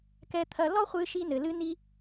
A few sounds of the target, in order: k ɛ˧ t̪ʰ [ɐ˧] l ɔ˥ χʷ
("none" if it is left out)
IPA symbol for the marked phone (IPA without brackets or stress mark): ɐ˧